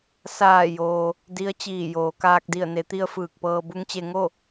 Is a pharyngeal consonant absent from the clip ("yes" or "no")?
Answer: yes